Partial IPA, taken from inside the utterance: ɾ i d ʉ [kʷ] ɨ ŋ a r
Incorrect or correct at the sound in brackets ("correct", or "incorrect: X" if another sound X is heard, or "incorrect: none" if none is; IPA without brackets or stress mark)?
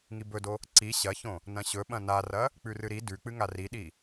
incorrect: k͡p